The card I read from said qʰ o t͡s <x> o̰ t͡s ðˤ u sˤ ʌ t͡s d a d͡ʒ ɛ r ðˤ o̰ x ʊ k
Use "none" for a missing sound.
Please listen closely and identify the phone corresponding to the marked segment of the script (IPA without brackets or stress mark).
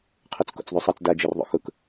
k